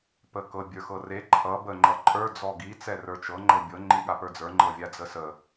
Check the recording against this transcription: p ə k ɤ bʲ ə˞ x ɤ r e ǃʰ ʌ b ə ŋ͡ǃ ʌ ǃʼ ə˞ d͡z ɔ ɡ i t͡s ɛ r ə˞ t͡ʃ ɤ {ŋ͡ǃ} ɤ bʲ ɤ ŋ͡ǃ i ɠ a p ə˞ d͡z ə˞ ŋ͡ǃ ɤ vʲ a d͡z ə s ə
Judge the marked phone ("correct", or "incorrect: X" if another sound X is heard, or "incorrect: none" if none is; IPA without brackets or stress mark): correct